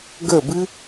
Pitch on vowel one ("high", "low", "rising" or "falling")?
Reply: falling